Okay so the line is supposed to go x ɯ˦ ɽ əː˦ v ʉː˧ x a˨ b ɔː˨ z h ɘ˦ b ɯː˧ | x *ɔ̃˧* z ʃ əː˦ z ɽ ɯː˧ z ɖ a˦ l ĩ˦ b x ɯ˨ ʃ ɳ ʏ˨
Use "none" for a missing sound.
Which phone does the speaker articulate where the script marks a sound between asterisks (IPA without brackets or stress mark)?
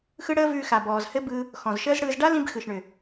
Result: ɔ̃˨